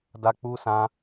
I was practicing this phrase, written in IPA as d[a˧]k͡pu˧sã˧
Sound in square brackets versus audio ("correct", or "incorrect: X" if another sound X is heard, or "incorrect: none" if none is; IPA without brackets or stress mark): correct